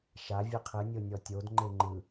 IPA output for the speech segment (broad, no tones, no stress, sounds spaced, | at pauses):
ʃ a vʲ ɛ qʰ ɯ nʲ o nʲ ɔ tʲ o d ŋ͡ǃ e ŋ͡ǃ ɯ